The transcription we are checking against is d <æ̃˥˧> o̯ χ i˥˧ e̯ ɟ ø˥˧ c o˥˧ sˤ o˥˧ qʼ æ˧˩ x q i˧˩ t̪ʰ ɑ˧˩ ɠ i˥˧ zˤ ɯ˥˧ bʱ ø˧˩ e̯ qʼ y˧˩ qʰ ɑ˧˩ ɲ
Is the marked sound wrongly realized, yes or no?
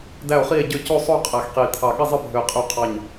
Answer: yes